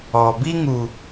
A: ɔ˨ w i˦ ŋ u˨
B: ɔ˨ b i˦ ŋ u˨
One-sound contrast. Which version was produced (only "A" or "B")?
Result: B